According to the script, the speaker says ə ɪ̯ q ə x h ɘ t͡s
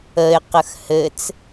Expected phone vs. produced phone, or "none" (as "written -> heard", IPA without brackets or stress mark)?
none